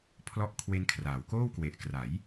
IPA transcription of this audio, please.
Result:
pʰlɔ˦˥ʔkʰwe˦˥nkʰraː˩˦w koː˥˩wkwe˨˩ʔkra˩˦j

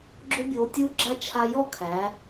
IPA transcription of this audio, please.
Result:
ɡ͡ǁo˥bʲoː˧tʲuː˥ɡ͡ǁa˥ t͡ʃʰa˧jɔ˥˧ kʰæː˩˧

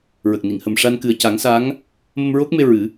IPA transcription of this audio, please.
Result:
ɹə˨˩k̚ni˨˩˨ŋhə˨˩m ʂa˧n kɨ˨˩ə̯ca˨˩˦ŋsa˧˥ŋ | mə˧mɹo˦˥k̚me˧ ɹɨ˨˩˦

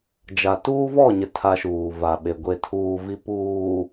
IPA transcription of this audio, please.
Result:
d͡ʒa˨tuː˦vɔ˦˨ɲɪ˨ tʰa˦ʃuː˨ va˨ɓe˨ ɡʷe˨tʰuː˨vi˨˦ puː˨

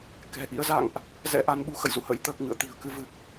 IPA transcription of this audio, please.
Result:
kɛ̤˨˩ʔḭ˧˥ə̯ za̰˧˨ŋʔ | zɛ̰˧˥ʔa˧nɓu˧ xə̰˧˨jzṵ˧˨ hə̰˧˥jt̪əː˨˩k̚ ŋɨ̰˧˨ə̯t̪i̤˨˩ə̯ kɨ˧vɨ˨˩k̚

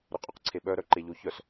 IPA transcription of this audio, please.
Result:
ɾʏqʼuqǀʰeɓœ ɾœǃeʎoçœs

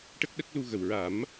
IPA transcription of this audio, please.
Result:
ʈə˦˥k̚ɗə˦˥k̚ lu˧ɣə˨˩w ɹa˨˩˦m

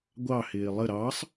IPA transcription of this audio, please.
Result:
ɡʷɑhɪː lˠə ɾɑsˤ

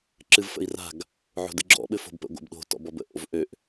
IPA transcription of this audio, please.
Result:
ǁɨvfə̰i̯ra̤ɡ | ʕo̤dɨɡ͡ǁɔ̰ ɓɘfo̤bpə̰ ɡʷə̰bɗo̤ tɔ̰bɔbə̰ ʔo̰vʔøʔ

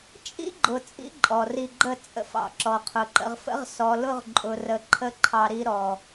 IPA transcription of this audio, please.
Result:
t͡ʃʼḭ˦ɡ͡ǃʊ˨ t͡sʼḭ˦ǃʼɔ˨ri˧ɡ͡ǃə˦˨ t͡sʼə̰˧fɑ̰˧ ǁɔ˨qʰʊ˨ǃə̰˧ʁfə̰˦ʁ sɔ˨lʊ˧ʁǃʼʊ˨ rə˧ ǃʰə˦ǃʰɑ˧ɾi˦ɾɔ˧

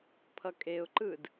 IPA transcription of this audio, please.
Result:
pʰʌkʼeʊ̯ǃɯd

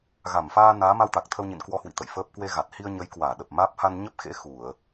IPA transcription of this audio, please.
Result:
ɣa˧˩mfaː˧ naː˨˦ma˧wt̪a˨˩k̚t̪ʰə˧w ɲḭ˧˨nkwɔ˧hwḭ˧˨ t̪ə̰˧˨jfəː˦˥p̚ kwe˧ɣa˨˩t̚ hi˧ə̯ɲə˨˦jkwaː˧˩ ɗə˨˩p̚maː˦˥p̚ ha˧nɲə˦˥p̚xḛ˧˥ xu˧˩˨ə̯

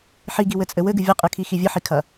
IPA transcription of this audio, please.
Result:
ħiɡiwɘt͡sʼɘ wɘɡɨ vʲɐqʼɨkʰixi vʲɘħikʰɐ

